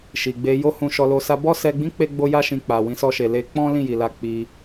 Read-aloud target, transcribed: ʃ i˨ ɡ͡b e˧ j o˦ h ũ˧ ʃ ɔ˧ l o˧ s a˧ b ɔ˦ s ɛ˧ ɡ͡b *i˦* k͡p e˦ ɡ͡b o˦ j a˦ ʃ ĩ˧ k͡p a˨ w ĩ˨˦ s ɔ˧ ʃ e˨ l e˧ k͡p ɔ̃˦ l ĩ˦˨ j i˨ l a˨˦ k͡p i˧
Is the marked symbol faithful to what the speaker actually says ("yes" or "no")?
no